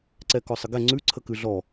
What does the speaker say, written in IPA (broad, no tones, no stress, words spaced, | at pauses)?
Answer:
ǀɛkɔsˤəɡɛ ŋ͡ǀʉ ǀʰəkʉɮɔ